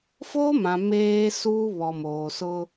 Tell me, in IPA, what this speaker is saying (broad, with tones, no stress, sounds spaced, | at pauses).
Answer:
f oː˦ m ã˨ m eː˦ s uː˦ β ɔ˨ m oː˨ s ʊ˦